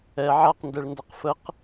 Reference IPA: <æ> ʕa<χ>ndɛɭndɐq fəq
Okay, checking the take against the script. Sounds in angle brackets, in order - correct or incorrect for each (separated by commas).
incorrect, incorrect